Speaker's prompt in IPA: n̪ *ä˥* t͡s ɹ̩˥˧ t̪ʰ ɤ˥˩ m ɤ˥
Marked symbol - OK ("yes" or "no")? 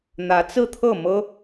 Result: no